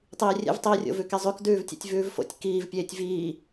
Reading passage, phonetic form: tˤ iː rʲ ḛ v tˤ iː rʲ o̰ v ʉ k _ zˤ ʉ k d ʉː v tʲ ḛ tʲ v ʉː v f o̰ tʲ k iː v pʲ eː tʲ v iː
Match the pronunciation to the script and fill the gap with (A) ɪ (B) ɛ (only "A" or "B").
B